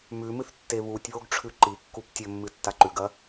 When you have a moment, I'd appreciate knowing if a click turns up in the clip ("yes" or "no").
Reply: yes